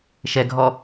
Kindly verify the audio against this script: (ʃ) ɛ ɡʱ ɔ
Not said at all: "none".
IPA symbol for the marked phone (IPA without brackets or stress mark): ʃ